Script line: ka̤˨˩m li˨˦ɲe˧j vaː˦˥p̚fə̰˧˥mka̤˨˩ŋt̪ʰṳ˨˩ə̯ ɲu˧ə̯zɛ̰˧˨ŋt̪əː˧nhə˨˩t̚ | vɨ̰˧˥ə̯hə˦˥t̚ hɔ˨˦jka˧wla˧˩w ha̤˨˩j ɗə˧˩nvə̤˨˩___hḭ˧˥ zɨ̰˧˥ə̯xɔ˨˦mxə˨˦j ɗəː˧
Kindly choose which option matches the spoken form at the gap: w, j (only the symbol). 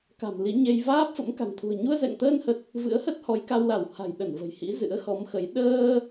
j